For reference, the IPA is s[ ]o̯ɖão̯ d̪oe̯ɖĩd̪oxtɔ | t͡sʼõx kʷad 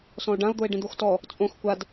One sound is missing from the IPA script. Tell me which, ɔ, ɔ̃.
ɔ̃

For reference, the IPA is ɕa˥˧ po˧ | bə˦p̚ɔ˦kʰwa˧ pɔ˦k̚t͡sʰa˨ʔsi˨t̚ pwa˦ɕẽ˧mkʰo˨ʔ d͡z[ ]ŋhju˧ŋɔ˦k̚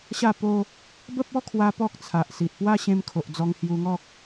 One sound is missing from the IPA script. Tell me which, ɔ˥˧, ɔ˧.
ɔ˧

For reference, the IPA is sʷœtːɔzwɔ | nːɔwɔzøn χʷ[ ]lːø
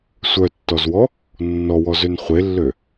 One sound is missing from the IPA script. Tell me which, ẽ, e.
e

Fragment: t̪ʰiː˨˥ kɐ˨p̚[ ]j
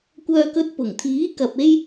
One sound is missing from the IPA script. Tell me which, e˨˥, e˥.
e˥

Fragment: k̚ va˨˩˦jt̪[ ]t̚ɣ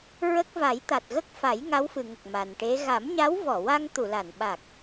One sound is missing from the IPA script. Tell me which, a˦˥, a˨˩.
a˨˩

